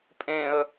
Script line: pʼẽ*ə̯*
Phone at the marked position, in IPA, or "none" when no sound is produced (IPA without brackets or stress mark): ə̯